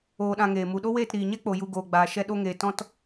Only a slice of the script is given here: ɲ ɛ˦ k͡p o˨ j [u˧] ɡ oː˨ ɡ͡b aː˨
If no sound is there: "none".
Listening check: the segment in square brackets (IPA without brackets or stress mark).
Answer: u˧